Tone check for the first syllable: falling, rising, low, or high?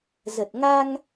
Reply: low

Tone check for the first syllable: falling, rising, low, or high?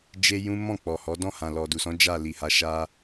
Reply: high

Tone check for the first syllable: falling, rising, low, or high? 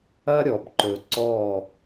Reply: high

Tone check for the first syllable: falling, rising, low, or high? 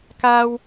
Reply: high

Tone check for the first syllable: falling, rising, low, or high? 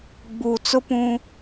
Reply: low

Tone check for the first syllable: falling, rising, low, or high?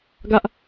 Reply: high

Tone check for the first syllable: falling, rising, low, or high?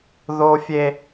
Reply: high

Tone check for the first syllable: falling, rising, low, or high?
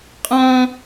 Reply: high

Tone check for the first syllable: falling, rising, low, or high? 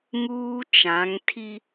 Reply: high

